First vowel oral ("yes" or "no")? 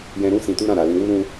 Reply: no